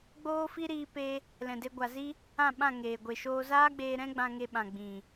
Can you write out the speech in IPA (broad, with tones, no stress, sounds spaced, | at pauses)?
ɡ͡b oː˦ f i˦ ɾ iː˦ p e˦ | l ɛ̃˨ d e˧ ɡʷ a˨ z i˦ | ã˦˨ ɓ ã˦˨ ŋ eː˨ ɡʷ e˨ ʃ oː˧ z aː˦ ɡ͡b eː˧ ɾ ɛ̃˦ ɡ͡b ã˧ ŋ e˧ ɓ ã˨ ɡ͡b ĩ˨